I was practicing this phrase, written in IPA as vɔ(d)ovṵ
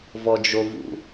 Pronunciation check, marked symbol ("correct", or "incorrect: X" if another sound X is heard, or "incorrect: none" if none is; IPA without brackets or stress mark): incorrect: d͡ʒ